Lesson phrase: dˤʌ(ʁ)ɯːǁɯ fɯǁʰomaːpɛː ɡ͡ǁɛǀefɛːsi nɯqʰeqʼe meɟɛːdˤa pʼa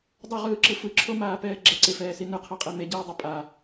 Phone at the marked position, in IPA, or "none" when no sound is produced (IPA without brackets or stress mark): ʁ